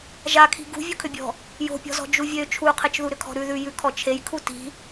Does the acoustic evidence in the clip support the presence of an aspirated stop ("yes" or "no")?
yes